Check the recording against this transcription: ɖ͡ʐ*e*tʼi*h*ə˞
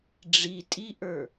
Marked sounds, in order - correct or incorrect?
incorrect, incorrect

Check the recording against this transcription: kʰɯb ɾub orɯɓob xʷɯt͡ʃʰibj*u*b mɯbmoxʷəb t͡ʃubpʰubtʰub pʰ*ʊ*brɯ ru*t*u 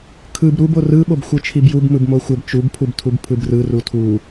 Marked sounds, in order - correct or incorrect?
correct, incorrect, incorrect

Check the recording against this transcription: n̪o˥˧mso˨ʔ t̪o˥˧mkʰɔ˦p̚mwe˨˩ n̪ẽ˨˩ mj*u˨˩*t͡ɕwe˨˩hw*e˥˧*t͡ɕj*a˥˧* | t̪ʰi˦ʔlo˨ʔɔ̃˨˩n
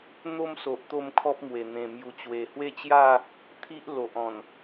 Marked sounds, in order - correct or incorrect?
correct, correct, correct

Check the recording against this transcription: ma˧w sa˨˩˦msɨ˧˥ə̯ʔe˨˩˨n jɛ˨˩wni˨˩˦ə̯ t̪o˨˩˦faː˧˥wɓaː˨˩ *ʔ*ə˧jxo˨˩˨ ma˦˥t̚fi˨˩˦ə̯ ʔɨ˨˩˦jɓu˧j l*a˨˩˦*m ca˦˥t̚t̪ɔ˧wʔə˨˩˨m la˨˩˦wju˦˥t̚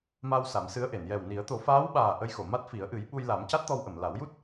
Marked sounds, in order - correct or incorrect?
correct, correct

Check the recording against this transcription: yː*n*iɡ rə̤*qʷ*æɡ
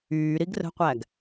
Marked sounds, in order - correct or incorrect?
incorrect, correct

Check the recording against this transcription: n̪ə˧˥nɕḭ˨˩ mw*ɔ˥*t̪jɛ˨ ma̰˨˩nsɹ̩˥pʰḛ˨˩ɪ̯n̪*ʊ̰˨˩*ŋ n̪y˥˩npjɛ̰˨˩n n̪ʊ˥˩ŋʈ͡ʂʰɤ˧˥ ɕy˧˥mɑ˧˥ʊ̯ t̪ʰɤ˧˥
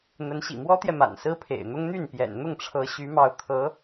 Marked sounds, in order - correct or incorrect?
correct, incorrect

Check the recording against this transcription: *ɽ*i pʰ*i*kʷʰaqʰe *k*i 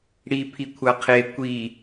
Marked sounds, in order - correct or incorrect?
correct, correct, incorrect

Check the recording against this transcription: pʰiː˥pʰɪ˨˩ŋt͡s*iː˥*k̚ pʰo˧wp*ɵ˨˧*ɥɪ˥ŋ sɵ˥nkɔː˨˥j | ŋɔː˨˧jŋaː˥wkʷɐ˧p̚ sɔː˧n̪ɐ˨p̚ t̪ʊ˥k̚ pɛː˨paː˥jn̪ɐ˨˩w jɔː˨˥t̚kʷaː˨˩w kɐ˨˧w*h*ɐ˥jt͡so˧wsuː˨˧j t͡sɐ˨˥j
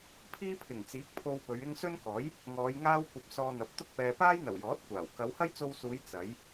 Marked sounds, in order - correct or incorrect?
incorrect, correct, correct

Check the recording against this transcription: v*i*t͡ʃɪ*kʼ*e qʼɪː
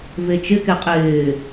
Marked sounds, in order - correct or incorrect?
incorrect, incorrect

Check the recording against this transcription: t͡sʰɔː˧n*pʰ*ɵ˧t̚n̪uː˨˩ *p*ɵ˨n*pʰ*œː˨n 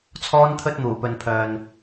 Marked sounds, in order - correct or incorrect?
incorrect, correct, correct

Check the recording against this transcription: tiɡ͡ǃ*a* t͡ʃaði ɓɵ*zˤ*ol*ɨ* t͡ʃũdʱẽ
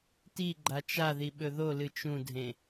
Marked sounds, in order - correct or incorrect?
correct, incorrect, correct

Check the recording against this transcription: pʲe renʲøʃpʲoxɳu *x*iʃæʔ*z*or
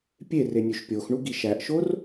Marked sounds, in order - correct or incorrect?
incorrect, incorrect

